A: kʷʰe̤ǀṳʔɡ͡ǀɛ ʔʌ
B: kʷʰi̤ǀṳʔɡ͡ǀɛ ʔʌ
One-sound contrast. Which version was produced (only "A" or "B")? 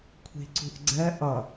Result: B